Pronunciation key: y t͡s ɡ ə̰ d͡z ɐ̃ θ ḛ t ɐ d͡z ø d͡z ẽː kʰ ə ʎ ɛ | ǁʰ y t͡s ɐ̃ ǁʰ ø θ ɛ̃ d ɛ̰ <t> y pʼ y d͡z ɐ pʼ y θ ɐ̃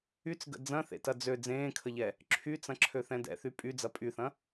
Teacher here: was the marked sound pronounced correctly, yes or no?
no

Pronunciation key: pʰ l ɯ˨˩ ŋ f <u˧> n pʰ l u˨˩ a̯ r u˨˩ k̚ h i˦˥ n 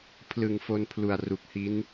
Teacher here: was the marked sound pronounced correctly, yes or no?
no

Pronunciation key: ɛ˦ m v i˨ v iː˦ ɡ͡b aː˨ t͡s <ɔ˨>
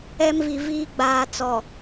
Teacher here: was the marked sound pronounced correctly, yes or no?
yes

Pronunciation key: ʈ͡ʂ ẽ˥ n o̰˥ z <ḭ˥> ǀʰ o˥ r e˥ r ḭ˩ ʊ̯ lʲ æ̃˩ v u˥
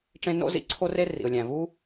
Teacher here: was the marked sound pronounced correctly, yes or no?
yes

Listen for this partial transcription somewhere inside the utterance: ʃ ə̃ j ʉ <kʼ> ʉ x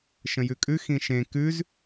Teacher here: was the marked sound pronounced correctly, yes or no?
yes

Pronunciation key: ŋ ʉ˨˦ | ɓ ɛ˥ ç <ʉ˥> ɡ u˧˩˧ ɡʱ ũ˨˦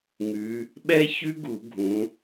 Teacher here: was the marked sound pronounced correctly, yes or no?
yes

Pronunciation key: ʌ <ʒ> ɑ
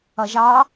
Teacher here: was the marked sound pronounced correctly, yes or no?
yes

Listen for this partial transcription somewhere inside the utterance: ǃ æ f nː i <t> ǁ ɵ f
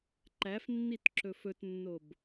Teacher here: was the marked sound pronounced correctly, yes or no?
yes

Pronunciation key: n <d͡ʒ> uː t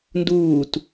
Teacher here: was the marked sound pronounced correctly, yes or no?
no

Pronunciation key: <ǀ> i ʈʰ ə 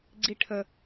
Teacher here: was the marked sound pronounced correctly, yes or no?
no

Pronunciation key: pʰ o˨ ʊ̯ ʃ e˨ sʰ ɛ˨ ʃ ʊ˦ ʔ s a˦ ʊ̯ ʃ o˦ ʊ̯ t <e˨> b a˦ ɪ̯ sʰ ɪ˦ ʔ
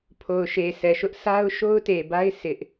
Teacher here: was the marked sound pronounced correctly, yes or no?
yes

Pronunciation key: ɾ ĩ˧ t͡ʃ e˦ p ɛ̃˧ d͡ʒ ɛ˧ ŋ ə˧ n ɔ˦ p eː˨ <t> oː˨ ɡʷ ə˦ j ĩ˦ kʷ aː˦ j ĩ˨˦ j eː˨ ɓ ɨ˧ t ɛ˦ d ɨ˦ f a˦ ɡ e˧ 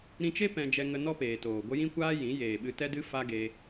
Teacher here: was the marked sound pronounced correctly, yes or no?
yes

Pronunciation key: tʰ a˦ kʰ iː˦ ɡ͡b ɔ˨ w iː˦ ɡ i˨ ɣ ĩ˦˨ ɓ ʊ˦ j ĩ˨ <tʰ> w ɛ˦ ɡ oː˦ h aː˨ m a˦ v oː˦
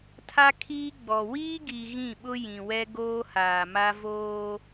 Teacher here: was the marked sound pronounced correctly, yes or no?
no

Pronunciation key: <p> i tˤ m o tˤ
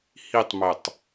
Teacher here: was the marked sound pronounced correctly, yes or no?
no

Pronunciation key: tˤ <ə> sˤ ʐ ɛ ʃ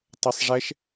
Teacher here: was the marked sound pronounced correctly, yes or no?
yes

